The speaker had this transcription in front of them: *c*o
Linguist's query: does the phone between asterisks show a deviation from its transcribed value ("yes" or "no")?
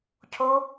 yes